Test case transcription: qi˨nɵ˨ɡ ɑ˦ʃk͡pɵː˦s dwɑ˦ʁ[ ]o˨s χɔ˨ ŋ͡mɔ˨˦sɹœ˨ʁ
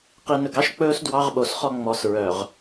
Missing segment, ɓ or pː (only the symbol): ɓ